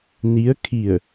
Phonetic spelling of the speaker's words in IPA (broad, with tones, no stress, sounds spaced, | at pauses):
n i˧˥ ə̯ kʰ i˧˩ ə̯